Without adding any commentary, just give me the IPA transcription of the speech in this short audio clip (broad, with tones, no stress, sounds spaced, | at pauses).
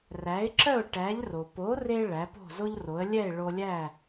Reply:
r æ˩˥ ɪ̯ ǁ œ˥˩ ʊ̯ ʈ æ˩˥ ʎ r o˩ p o˩˥ r e˧ ɭ æ˩˥ p o̤˥˩ z o˥ ʎ r o˩˥ ə̯ lʲ ɛ˥˩ ɪ̯ ɭ o˧ lʲ æ˥˩